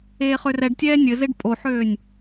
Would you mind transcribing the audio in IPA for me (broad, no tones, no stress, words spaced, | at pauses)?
eːχørɛɖtʲɛː nʲɘzeɖ pʼoħøːnʲ